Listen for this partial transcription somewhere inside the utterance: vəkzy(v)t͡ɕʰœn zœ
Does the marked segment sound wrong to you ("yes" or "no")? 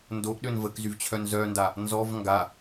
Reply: no